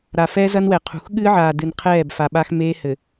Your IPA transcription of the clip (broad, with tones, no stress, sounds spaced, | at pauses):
ɾ a˨ f ɛː˦ z ɐ˦ n w ɛ˨ qʰ ṳ˨ x ɠ ɨː˦ ʕ aː˨ d ɨ˨ n qʰ ɛː˦˨ b f a˨ ɓ a˦ x m eː˦ h ɘ˨